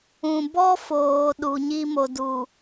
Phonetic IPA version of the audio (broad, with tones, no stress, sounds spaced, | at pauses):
ũ˨ b ɔ˦ f oː˨ ɗ u˨ ɲ i˦ m o˨ d u˨